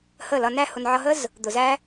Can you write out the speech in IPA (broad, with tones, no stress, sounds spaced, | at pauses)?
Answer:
h ə˦˨ l ʌ˧ n æ˦ h ʊ˧ n ʕ ʌ˧ ɦ ə˦ z | d̪ ʊ˨ z æ˦